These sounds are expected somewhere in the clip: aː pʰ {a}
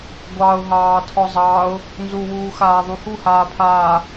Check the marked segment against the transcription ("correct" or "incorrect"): incorrect